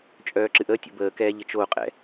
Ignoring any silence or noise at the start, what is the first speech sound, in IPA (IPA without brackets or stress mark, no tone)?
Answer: t͡ʃʼ